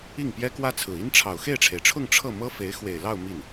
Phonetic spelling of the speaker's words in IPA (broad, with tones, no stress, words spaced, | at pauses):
i˥˩ŋpjɛ˥kwä˥t͡sʰɹ̩˨˩ i˥nʈ͡ʂʰɑ˨˩ʊ̯ xe˥˩ɪ̯ʈ͡ʂʰe˩ɪ̯ʈ͡ʂʰʊ˥˧ŋ ʈ͡ʂʰɤ˥˩mɤ˥ fe˧˥ɪ̯ xwe˨˩ɪ̯lɑ˥˧ʊ̯ mi˥˩n